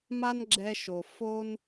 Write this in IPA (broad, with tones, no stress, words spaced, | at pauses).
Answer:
ma˥nɡ͡ǁɛ˧ʃo˩ fo˧n